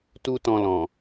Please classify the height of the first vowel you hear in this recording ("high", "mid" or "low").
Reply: high